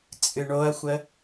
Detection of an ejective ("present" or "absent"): present